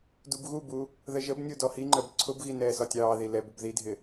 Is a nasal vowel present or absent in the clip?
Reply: absent